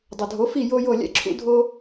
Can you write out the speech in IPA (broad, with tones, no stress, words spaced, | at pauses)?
dˤʏ˩dʱo˩˥fi˥˩ jo˥jo˥˩ lʲɛ̰˥ǁʰṵ˥ dʱo˥